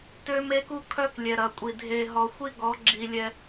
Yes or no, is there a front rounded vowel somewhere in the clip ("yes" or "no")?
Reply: yes